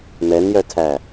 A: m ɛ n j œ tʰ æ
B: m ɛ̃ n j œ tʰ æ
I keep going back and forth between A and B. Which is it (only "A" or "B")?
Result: A